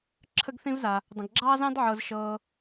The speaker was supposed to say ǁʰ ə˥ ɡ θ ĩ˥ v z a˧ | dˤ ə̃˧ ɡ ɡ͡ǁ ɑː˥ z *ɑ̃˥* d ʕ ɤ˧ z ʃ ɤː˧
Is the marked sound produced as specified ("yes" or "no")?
yes